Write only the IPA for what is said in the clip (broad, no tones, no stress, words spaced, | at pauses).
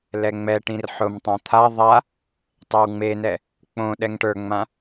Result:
lɛŋ͡mɛʈĩr ħʊmtˤã t̪ʰa ðˤa | tˤewŋ͡menɛ | k͡põ ɗɛŋʈə˞ŋ͡mã